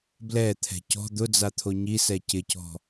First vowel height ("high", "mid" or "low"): mid